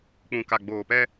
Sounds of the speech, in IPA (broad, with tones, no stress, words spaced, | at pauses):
k͡pũ˨ka˨ɡ͡boː˨pɛ˦